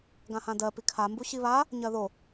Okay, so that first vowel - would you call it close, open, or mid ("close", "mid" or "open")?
open